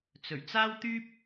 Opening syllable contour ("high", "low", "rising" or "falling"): low